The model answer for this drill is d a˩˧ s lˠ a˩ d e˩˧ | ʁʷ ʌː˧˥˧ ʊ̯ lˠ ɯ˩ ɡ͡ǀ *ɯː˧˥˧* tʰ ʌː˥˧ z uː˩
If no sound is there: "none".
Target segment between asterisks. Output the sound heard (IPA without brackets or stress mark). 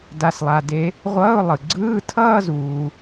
ɯː˧˥˧